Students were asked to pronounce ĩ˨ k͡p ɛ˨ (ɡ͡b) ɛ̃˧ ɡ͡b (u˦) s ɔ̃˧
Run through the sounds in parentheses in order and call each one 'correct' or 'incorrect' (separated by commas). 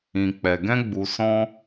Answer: incorrect, incorrect